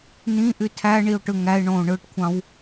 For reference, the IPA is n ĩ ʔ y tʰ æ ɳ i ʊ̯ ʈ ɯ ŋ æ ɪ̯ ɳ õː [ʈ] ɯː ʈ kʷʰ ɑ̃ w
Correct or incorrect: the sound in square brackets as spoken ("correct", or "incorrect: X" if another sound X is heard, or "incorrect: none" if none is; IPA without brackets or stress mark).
incorrect: ɳ